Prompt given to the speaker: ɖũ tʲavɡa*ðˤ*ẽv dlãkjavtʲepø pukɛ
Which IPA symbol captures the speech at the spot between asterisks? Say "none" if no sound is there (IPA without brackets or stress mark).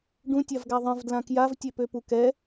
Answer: ðˤ